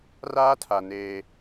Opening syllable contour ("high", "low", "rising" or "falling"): high